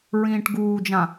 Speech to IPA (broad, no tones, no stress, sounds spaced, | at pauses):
ɹ ĩː ʈ ɡ uː d͡ʒ ã